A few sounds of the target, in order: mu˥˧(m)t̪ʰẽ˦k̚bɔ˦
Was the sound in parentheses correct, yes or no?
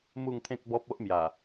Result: no